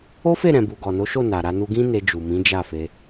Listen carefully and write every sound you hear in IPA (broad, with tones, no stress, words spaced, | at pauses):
o˦fe˦˨ ɾɛ̃˨bu˨ ɡɔ˨no˨˦ʃo˦˨ na˨ɾa˧nu˧ ɡĩ˦ ne˧d͡ʒu˨mĩ˨˦ d͡ʒa˦˨fe˧